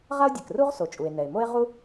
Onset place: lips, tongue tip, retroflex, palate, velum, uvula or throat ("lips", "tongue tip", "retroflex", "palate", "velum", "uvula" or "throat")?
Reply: uvula